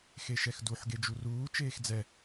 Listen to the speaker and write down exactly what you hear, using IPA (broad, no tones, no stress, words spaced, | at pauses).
xeʃɛxduħ ɡed͡ʒuruː t͡ʃeːxd͡zɛ